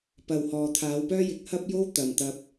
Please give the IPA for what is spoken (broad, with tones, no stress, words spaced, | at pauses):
pɐ˨whɔː˨ t̪ʰaː˨˧wpœː˥jɪ˨˥k̚ hɐ˥p̚jo˥w t̪ɐ˨m t̪ɐ˧p̚